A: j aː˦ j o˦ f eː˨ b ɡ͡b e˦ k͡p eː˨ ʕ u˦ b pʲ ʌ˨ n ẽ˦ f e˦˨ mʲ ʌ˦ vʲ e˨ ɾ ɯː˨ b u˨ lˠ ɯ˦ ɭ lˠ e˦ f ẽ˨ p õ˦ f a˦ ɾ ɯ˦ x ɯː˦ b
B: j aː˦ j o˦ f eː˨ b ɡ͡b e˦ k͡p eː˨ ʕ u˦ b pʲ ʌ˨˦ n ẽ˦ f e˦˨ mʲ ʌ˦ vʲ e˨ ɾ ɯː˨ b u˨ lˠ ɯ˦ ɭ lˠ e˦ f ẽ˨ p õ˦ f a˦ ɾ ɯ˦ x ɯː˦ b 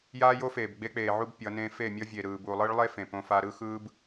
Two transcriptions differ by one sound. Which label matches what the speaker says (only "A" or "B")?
B